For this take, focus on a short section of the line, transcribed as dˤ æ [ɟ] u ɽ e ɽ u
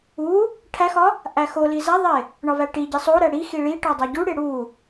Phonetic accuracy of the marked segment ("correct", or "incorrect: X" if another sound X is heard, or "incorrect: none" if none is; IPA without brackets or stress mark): correct